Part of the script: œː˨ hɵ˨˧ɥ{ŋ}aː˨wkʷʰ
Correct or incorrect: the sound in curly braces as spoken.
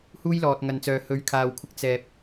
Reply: incorrect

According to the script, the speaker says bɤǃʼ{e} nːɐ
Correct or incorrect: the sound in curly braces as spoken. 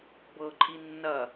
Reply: incorrect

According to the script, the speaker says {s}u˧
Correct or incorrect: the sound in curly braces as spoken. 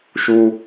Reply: incorrect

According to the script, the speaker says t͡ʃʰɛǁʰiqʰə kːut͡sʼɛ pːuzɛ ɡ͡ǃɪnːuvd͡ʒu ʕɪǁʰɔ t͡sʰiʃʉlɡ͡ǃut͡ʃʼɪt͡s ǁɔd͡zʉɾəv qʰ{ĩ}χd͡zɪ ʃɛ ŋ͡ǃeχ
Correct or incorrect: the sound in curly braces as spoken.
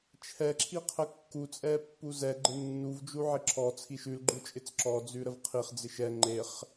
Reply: incorrect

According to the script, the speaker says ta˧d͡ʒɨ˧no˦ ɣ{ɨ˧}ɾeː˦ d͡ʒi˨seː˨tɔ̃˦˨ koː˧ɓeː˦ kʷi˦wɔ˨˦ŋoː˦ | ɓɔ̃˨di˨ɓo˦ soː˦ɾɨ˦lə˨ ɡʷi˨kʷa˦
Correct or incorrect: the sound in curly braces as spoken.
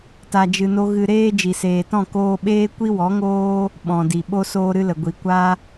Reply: correct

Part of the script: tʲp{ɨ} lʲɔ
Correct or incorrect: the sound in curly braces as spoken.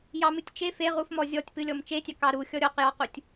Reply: correct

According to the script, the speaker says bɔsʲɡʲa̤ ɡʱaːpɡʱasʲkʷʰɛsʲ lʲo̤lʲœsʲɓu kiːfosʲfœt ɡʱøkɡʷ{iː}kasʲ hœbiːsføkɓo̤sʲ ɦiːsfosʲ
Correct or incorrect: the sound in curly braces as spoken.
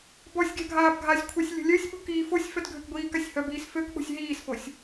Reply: correct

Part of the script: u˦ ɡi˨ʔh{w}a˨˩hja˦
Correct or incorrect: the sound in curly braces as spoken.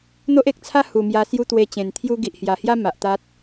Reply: incorrect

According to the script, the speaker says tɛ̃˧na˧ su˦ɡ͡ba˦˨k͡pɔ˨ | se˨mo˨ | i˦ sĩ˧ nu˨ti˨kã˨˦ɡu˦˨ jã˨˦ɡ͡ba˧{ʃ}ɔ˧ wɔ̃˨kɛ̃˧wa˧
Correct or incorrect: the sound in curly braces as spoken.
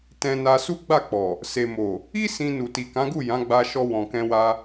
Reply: correct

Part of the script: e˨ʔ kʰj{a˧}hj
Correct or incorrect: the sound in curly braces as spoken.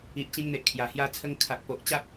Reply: incorrect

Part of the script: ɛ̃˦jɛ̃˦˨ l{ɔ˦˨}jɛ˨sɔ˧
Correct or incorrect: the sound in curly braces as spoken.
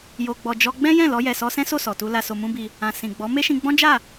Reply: incorrect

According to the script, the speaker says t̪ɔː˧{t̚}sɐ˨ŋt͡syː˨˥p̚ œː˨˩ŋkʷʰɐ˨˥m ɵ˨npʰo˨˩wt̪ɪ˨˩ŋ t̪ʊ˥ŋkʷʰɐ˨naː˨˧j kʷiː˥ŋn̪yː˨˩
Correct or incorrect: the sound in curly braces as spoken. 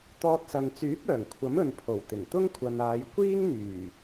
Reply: correct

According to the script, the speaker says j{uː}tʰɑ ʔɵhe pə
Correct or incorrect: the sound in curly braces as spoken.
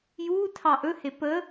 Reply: correct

